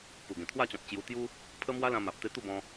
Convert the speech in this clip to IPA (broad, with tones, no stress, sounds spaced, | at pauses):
p u˨˩ ɡ ẽ˨˩ t̪ʰ w a˥˧ t͡ɕ ɔ̃˨ t̚ t͡ɕ j u˧ t̪ j u˦ | pʰ ə˦ m w a˦ l ã˧ m a˨ p̚ t̪ e˧ t̪ u˥˧ b ɔ̃˧